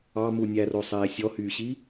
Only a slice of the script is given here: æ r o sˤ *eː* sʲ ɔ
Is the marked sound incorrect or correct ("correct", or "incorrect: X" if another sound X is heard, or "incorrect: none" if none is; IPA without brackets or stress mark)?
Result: correct